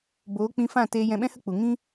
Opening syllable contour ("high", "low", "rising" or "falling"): rising